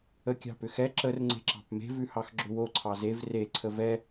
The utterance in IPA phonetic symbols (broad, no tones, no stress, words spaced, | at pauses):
ə kʲɑ̤pʏxɛ ǁər ŋ͡ǀe̤ǁɑ̤pme̤ vʉhɑxɡ͡ǁʏwo ǀʰɑzev re ǀʰəvɛ